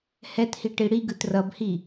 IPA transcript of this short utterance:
hɛthi ʈiɽiɡɯt rʌbhi

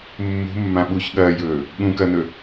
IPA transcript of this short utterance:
mːṳmːã ɓuç ɠɐːjɵː | ɠũkɐnɵ

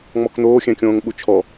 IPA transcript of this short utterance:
ŋ͡mɔkn̪oː xʲɛ̃kʲõːŋɓut͡ʃʰɔ

